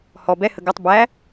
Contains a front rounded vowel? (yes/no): no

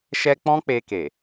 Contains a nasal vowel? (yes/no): yes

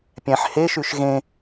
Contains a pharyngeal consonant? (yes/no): yes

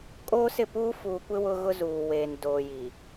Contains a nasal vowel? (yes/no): no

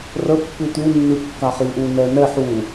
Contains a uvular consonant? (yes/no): yes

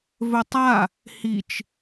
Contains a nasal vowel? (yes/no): no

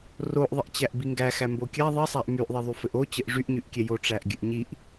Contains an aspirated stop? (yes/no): no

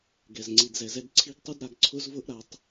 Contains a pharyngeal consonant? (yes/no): no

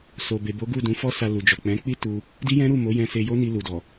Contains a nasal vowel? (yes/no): yes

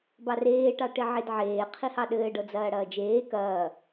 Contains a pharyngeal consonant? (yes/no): yes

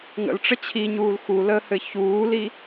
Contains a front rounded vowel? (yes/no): no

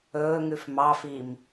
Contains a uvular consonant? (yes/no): no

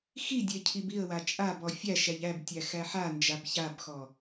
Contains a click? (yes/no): no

